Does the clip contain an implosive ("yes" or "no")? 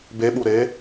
yes